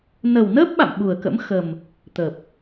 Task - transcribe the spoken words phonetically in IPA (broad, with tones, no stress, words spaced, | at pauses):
nə˨˩wnəː˦˥p̚ɓa̰˧˨m ɓu˨˩ə̯kə̰˧˥m xə˨˩m | t̪ə˨˩p̚